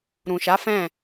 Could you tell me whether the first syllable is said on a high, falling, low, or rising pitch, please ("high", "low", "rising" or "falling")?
low